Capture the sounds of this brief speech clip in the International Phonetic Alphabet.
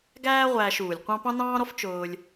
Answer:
ɡ æː˥ ʁʷ æː˧ ʃ uː˩ lʲ qʷ ɑ̃˥ p ɑ̃˥ n ɑ̃ː˥ ɾ ɔ˥ f t͡ʃ ʊː˧ lʲ

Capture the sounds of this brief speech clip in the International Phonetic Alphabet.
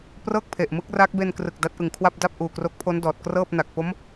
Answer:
p r ɤː˥˩ k̚ pʰ e˨˩ ʔ m ɯ˦˥ k̚ r a˦˥ k̚ b e˧ n k r ɯ˨˩ k̚ d a˦˥ t̚ ʔ ɯ˨˩ ŋ kʰ w a˥˩ p̚ d a˥˩ p̚ ʔ uː˨˩ k r o˦˥ k̚ pʰ o˦˥ n d ɔː˨˩ t̚ k r ɤː˥˩ p̚ n a˨˩ k̚ p o˦˥ m

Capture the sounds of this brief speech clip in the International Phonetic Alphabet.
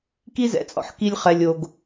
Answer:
k i˥ z ɛ̰˩ t͡sʼ ɔ̰˩ ħ k i˧ lʲ χ ɛ˩ lʲ o˩ ɡ

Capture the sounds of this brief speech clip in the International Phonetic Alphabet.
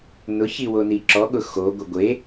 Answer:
n ʊ ç i w o n i ǁ ɔ ɠ ʊ x o ɡʷ e ɡʷ e

